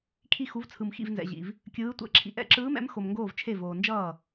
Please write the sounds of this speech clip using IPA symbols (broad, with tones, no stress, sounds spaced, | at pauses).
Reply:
kʰ i˥˨ x u˧˥ v t͡sʰ ɯ˧ m x ḭ˥˨ v n z ɛ̰˧ ʑ ḭ˧ v | kʲ ɯː˧˥ tʷ ɛ̰˧˥ ǁʰ ḭ˧ ʔ ɛ̰˥˨ ǁ ɯː˧˥ m ɛ̰˧˥ m x o˧ m ŋ ɡ oː˥˨ v t͡ʃʰ e˥˨ v oː˧ n d͡ʒ ʌː˥˨